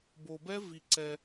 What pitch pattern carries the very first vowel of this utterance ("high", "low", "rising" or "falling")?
low